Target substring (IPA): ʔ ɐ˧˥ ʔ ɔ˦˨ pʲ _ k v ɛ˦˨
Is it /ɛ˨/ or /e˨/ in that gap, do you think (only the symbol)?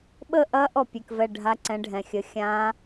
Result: e˨